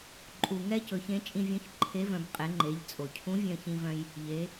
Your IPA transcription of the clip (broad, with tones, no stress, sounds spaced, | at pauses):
ǃʼ u˩ ŋ ɛ˥ c ɵ˩˧ ç ẽ˧˥ t͡ʃʼ ĩ˧ vʲ œ̃˧˥ ç ǃʰ e˧˥ v œ̃˩˧ b qʼ e˩˧ ŋ͡ǃ e˩˧ ʎ t͡sʼ o˩ cʰ ũ˧˥ vʲ œ̃˧ ç ĩ˧ v œ̃˧ j | ʎ e˩˧